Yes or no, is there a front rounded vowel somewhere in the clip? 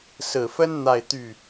yes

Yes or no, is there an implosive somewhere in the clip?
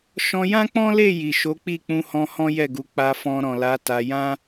no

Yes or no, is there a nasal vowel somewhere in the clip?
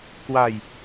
no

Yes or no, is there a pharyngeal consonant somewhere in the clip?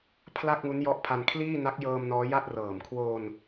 no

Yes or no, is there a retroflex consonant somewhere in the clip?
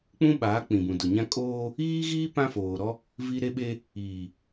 no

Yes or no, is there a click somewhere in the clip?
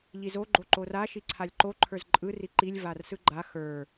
yes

